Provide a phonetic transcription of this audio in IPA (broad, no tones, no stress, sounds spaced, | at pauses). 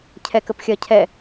cʰ ɛ k ə p xʲ ɜ cʰ ɛ